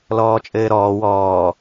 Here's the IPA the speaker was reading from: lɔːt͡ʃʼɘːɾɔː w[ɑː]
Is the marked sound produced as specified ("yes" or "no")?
no